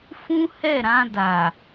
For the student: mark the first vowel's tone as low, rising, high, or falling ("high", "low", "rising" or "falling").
high